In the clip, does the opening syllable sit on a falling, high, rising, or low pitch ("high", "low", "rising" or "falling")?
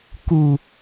low